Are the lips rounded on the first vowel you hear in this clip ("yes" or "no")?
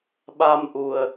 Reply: no